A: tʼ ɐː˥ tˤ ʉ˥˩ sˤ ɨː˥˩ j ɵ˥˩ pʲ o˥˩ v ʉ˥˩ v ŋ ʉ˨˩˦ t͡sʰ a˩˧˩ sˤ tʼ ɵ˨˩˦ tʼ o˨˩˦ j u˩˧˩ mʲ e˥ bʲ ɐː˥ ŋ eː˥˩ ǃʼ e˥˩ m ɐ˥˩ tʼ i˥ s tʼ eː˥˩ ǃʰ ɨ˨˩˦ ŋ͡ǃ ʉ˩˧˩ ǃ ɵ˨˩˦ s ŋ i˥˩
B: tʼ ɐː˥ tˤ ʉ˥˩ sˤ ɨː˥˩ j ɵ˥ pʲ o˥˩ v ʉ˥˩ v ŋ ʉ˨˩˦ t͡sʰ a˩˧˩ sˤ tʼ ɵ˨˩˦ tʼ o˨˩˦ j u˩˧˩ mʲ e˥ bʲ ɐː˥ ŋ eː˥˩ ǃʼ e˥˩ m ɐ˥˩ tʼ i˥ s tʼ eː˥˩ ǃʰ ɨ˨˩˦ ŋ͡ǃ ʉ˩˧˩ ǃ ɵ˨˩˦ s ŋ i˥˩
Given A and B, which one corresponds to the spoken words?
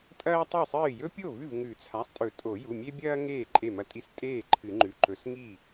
B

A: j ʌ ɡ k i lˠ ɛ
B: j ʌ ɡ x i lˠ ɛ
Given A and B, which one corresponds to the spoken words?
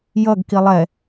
A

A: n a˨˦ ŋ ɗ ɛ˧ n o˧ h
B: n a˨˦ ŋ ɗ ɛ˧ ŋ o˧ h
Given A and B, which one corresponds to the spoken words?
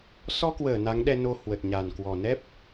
A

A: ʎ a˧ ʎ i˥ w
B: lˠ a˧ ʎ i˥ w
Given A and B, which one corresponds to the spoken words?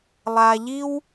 B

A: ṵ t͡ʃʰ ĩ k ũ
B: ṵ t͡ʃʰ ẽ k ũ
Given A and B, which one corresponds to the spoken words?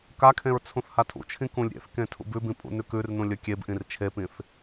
A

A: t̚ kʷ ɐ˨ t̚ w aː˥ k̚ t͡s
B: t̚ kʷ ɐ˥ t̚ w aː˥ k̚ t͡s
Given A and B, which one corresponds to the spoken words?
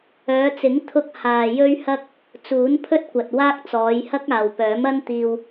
A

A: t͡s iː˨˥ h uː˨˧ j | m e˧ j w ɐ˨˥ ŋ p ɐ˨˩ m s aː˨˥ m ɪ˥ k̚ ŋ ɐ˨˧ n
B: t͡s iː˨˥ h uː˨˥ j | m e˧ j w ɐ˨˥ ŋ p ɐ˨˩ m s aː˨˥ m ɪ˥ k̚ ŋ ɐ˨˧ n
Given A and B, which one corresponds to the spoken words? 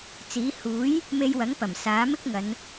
B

